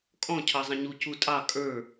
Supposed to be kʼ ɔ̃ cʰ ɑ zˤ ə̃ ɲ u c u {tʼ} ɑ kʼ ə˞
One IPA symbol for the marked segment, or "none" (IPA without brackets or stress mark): tʼ